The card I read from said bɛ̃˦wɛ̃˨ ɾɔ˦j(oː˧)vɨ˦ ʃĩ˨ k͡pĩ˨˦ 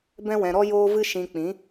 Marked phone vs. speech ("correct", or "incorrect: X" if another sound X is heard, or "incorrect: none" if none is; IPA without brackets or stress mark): incorrect: oː˦